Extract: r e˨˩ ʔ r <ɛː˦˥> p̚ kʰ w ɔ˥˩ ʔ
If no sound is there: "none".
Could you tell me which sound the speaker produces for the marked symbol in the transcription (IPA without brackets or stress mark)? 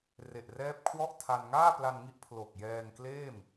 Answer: ɛː˦˥